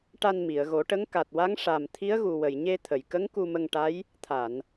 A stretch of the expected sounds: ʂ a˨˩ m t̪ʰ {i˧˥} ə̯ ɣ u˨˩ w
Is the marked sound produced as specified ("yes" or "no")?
yes